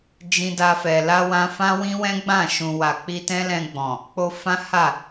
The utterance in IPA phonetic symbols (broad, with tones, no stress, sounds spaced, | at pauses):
d͡ʒ ĩ˧ d a˧ f ɛ˨ l a˧ w ã˧ f ã˦ w ĩ˦ w ɛ̃˦ ɡ͡b ã˦˨ ʃ ũ˨ w a˨ k͡p i˧ t ɛ̃˦ l ɛ̃˧ ɡ͡b ɔ̃˨ | k͡p o˧ f ã˦ h a˦˨